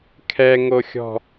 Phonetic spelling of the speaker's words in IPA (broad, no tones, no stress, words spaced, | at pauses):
kʰɛŋoxʲɔ̤